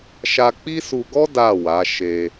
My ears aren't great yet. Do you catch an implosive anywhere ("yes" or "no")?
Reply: no